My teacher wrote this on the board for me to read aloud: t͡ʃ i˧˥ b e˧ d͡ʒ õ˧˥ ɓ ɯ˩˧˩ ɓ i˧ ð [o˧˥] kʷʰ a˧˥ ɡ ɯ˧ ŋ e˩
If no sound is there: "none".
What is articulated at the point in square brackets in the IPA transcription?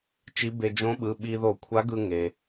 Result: o˧˩˧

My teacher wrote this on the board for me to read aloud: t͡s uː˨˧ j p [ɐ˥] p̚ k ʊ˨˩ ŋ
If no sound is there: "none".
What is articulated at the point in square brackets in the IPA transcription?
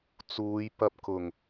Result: ɐ˧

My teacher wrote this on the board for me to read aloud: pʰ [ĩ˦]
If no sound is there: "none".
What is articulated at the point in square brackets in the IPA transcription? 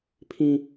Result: ĩ˦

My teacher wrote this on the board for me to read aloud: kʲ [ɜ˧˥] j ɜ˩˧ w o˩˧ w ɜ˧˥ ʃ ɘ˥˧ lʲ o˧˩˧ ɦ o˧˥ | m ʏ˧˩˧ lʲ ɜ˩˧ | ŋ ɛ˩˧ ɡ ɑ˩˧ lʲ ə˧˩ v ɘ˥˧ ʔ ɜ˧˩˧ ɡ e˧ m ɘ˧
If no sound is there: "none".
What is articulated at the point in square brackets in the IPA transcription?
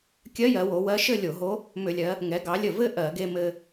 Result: ɜ˧˥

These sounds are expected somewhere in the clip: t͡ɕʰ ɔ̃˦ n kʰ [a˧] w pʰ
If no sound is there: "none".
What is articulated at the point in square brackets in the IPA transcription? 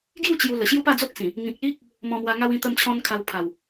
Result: a˧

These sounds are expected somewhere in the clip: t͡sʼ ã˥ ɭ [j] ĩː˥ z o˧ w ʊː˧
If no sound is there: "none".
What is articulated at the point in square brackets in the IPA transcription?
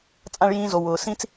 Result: j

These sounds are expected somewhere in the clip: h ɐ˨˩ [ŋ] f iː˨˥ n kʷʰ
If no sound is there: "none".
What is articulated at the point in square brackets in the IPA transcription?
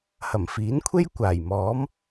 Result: m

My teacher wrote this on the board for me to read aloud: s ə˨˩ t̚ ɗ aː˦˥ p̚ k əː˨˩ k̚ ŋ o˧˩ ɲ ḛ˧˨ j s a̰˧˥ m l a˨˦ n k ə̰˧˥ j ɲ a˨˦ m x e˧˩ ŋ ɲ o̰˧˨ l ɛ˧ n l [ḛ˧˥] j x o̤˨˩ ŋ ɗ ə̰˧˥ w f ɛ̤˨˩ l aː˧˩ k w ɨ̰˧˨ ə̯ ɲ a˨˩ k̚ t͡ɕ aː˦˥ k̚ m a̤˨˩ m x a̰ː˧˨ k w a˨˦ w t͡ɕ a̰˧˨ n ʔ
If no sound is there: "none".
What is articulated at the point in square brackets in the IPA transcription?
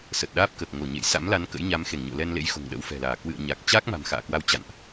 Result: ḛ˧˥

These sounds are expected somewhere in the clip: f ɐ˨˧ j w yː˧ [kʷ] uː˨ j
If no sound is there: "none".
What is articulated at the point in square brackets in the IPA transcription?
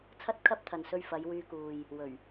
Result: k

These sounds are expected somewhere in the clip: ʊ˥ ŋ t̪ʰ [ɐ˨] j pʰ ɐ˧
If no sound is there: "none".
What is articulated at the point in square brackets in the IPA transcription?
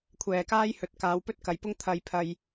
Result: ɐ˧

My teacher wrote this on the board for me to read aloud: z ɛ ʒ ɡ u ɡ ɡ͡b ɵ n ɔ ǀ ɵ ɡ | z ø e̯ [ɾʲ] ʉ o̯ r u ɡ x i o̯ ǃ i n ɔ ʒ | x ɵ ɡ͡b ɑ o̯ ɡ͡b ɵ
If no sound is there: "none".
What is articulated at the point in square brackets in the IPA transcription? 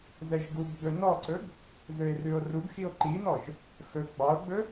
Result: r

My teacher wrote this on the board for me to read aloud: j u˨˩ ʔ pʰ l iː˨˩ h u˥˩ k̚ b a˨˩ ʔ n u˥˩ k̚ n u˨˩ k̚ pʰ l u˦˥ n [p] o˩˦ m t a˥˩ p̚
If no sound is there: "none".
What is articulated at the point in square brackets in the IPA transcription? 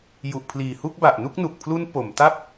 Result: p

